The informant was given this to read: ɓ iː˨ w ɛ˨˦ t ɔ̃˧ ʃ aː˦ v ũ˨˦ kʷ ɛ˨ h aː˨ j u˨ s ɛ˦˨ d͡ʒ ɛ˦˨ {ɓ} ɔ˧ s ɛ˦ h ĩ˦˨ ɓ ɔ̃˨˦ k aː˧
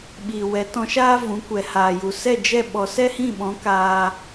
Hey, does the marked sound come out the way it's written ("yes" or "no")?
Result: yes